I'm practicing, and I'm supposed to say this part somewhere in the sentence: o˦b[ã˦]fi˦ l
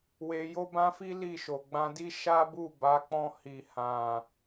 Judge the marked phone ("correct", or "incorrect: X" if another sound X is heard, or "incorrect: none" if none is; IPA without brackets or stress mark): correct